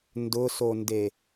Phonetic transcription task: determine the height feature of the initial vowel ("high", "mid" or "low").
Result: high